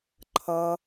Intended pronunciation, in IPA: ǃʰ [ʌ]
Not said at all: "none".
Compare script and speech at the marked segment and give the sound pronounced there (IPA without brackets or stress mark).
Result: ʌ